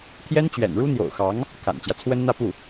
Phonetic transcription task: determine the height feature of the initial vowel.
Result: mid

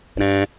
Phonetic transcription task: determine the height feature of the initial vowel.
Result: mid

